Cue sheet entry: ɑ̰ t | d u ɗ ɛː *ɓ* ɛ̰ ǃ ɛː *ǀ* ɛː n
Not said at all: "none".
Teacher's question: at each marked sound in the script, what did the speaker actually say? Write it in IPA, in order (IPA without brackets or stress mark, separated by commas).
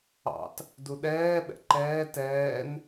ɓ, t